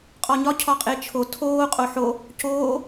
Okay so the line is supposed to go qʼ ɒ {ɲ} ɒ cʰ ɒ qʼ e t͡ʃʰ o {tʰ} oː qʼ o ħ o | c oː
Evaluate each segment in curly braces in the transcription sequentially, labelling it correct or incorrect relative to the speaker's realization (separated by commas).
correct, correct